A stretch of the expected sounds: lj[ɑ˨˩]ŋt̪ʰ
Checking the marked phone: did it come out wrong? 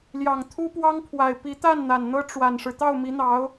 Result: no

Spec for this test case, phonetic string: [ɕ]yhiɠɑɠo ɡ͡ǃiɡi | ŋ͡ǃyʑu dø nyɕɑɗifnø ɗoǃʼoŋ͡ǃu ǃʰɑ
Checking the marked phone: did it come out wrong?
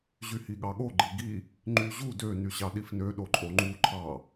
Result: yes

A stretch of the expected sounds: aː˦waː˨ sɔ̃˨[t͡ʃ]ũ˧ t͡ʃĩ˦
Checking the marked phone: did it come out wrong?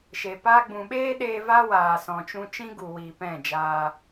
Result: no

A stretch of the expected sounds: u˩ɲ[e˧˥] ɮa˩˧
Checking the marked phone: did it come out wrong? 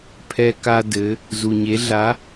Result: yes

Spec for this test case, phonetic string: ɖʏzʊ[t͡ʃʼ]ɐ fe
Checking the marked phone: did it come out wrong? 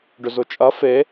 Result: no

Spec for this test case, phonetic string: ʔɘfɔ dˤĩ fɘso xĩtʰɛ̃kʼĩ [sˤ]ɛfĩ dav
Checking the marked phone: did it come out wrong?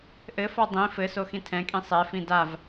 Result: no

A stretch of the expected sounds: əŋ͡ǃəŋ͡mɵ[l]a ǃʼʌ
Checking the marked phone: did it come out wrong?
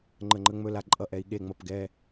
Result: no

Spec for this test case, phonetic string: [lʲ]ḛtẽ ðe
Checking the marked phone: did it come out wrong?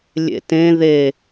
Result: no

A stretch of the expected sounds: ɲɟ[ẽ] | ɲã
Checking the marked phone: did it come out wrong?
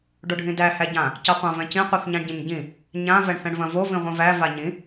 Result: yes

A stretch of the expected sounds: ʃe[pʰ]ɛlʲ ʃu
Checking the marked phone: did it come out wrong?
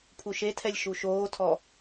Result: yes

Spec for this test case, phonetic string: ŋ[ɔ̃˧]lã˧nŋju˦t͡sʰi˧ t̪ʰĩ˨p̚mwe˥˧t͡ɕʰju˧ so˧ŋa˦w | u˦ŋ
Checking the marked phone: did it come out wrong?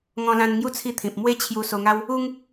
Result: no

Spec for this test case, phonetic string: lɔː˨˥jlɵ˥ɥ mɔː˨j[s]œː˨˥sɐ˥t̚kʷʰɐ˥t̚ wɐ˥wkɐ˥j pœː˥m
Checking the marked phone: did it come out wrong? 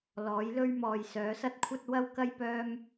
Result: no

